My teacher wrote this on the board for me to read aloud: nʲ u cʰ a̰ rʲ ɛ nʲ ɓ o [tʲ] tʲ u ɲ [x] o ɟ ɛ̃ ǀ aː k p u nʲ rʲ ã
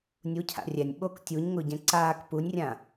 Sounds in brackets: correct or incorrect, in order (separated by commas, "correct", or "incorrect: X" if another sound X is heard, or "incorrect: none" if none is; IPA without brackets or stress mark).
incorrect: k, incorrect: ŋ